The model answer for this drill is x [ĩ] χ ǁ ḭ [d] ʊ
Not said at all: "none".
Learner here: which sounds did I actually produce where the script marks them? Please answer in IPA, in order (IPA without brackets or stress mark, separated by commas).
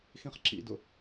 ĩ, d